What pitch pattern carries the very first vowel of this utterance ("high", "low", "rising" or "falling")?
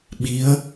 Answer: rising